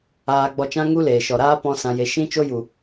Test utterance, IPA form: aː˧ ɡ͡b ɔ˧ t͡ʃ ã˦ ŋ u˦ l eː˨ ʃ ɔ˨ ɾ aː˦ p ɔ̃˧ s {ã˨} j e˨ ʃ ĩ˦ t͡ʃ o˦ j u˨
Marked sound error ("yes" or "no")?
no